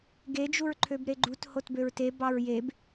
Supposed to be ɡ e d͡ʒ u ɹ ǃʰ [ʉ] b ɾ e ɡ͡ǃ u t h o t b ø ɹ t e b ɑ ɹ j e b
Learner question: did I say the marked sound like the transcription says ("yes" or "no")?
no